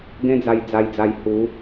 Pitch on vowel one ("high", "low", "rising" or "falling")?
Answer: high